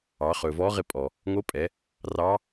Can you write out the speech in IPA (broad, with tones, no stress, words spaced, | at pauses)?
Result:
ɑː˩˧χɵː˩vɔː˧˥ ʁɪ˧pʼɔ˩ | ŋo˧˥pʼɛ˩˧ | rɑ˧˥